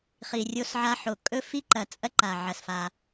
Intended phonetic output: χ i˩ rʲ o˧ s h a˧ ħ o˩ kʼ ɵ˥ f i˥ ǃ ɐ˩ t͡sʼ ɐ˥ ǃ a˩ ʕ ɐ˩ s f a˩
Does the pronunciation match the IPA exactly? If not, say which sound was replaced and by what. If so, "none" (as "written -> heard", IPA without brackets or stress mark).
h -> ʕ